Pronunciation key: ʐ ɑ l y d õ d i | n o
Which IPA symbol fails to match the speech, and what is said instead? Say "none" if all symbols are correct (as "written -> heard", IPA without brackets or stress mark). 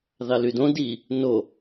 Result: ʐ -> ð